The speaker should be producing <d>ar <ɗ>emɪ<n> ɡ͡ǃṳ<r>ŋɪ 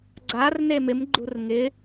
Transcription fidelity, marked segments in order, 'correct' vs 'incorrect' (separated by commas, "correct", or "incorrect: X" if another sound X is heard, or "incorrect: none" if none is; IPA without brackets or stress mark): incorrect: ɡ͡ǀ, incorrect: n, incorrect: m, correct